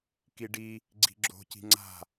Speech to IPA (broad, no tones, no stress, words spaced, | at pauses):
kiɖi | ɡ͡ǀi̤ɡ͡ǁo̤ ci̤ŋ͡ǀa̤